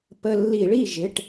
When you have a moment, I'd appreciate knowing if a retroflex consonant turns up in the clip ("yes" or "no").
yes